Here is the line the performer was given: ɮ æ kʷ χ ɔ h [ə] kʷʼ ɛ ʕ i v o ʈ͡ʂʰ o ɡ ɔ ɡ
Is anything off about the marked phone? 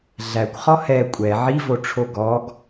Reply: yes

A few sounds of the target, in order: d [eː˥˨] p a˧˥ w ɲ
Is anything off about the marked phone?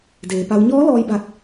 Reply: yes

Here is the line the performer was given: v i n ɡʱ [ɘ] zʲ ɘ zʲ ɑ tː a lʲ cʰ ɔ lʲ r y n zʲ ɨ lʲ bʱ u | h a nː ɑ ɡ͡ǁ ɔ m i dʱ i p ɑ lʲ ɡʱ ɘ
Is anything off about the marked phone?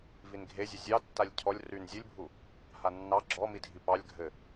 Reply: yes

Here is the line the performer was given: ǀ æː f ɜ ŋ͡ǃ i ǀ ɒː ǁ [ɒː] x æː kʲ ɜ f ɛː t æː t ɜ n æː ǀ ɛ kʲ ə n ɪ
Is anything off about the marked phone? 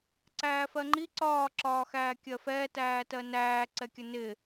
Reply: no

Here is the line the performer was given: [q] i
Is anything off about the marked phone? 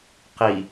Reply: no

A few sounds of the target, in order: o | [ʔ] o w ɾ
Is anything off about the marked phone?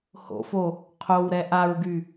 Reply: yes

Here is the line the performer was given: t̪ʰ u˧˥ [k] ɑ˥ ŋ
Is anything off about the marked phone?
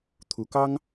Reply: no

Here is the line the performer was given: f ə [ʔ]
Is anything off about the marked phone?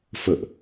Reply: no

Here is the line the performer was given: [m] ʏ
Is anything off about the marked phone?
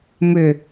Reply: no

